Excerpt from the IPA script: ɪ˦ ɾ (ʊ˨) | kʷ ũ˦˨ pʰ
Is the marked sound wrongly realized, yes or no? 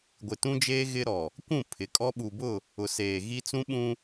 yes